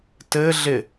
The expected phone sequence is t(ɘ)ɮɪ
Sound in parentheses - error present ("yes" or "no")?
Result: no